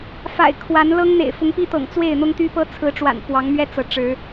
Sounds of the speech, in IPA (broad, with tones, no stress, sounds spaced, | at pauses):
f a̰˨˩ ɪ̯ kʰ w a˨˦ n l ɤ˦ ŋ n̪ ḛ˨˩ ɪ̯ f ʊ˨˦ ŋ p i˦ t̪ ɤ̰˨˩ ŋ t͡s w e˥˨ ɪ̯ n̪ ʊ˦ ŋ t̪ y˦ p ɤ˦ t͡sʰ ɹ̩˨˦ ʈ͡ʂ w a̰˨˩ n p w ɑ˨˦ ŋ m ɥ ɛ˦ t͡s ɤ˨˦ ʈ͡ʂ ɻ̩˨˦